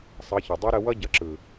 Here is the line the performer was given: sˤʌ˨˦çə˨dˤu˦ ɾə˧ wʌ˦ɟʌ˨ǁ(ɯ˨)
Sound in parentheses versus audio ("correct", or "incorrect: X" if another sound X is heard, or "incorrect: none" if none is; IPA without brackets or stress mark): correct